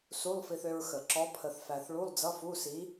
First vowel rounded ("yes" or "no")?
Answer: yes